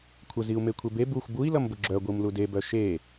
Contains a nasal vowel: no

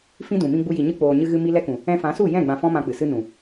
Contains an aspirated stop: no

